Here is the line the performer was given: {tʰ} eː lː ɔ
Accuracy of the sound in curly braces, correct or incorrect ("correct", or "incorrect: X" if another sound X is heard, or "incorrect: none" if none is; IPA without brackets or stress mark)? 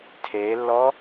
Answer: correct